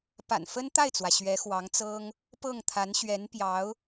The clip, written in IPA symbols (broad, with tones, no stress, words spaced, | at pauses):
pa̰˨˩nfə˥nt̪a˥˩ɪ̯t͡swä˩ ɕɥɛ˧˥xwɑ˧˥ŋt͡sɤ˥ŋ | pɤ˥˩ŋt̪ʰa˧˥nɕɥɛ˧˥npjɑ˧˥ʊ̯